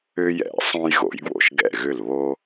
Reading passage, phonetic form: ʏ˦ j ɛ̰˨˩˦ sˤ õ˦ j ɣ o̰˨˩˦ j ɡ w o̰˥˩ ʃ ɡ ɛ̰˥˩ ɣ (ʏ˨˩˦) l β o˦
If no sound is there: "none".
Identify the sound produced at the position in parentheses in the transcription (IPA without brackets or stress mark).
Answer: ʏ˥˩